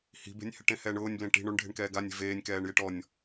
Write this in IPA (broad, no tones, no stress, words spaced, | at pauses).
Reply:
hi̤be̤nʲhɪʈẽ hɛːɳʊːnʲblẽ ʈi̤ɳ oɳɖʱe̤ɳkɛː ɡanʲe̤ veːnʲkɛːɳjeʈ ɔnʲ